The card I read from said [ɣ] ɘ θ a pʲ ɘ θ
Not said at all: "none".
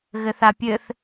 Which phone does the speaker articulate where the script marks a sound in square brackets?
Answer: ɣ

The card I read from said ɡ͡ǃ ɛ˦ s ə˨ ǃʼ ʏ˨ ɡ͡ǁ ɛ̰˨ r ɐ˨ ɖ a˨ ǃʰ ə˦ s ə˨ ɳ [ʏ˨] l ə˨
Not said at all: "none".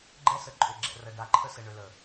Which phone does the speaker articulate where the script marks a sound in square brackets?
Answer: ʏ˨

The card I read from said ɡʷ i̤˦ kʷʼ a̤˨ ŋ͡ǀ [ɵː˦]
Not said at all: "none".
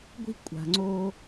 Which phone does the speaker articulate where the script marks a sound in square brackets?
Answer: oː˦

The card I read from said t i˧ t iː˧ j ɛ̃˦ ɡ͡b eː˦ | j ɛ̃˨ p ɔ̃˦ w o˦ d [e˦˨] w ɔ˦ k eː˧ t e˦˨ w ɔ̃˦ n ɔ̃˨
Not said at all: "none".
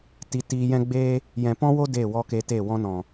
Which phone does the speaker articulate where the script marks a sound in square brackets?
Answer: e˦˨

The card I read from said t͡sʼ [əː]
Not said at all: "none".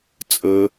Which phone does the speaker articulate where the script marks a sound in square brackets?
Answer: əː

